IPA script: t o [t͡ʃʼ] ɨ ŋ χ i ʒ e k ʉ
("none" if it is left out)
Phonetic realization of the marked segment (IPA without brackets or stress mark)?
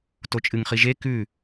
t͡ʃʼ